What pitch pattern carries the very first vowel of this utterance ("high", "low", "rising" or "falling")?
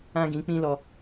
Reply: high